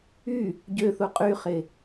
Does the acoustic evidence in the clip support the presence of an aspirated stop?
no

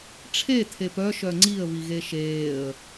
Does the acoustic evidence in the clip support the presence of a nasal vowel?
no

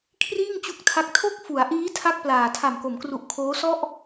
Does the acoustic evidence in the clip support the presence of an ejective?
no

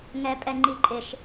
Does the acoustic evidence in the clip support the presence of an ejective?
yes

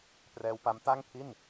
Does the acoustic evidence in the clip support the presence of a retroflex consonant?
no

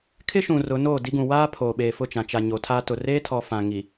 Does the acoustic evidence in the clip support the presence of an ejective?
no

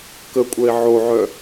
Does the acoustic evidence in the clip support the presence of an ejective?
yes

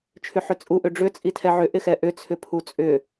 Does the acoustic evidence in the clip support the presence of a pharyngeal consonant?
yes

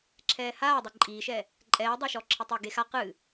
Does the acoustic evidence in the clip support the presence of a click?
yes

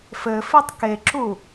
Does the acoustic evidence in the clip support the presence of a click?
yes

